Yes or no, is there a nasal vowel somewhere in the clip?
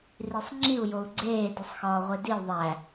no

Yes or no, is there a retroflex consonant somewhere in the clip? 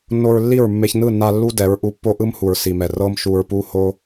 no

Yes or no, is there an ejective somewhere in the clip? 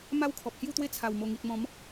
no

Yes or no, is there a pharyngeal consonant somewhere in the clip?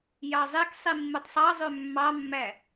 no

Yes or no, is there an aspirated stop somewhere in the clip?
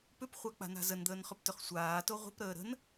no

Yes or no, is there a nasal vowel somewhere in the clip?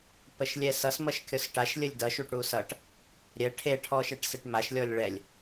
no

